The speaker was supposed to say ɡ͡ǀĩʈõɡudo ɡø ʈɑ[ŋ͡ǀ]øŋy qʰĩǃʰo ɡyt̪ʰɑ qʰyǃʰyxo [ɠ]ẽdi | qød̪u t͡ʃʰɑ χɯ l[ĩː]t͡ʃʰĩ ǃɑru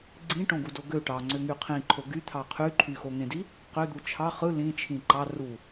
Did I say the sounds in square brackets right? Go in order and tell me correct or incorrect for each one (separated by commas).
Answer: correct, incorrect, incorrect